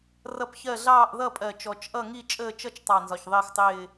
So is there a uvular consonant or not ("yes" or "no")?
no